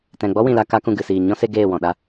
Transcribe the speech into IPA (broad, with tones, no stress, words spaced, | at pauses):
tɛ̃˨ ɡ͡bɔ˦wĩ˨la˧ ka˦kũ˧ ɡɨ˨siː˨ ɲɔ̃˦ se˦ ɡeː˦˨wɔ̃˨ ɗa˦